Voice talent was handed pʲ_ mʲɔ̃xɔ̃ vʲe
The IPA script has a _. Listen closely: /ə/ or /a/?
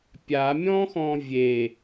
a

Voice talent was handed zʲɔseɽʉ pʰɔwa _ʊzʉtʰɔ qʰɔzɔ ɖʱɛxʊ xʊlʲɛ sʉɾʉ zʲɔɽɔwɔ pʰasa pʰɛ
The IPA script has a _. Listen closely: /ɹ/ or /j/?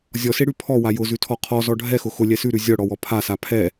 j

